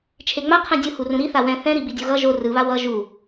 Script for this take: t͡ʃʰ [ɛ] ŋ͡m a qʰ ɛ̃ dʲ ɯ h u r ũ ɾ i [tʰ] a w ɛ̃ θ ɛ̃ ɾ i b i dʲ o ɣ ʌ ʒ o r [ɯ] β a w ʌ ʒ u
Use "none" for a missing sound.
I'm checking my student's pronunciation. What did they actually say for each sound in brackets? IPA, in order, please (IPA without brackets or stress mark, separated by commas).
e, θ, ɯ